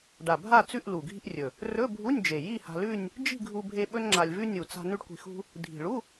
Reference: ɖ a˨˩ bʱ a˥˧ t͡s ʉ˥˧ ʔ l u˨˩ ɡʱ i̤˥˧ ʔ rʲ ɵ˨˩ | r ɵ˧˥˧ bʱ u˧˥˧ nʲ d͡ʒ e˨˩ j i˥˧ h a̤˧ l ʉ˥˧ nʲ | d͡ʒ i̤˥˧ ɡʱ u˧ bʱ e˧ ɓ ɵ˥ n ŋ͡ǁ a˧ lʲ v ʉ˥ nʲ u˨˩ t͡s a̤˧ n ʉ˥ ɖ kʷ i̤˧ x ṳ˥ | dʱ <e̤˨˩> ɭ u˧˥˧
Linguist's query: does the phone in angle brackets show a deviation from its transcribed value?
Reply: yes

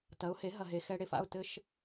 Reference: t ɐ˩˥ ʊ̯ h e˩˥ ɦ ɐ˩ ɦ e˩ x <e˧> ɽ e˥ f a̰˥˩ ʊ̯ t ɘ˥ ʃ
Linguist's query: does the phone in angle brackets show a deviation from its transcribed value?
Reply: yes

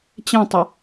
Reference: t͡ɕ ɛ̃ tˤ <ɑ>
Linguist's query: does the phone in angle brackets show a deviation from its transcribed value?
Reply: yes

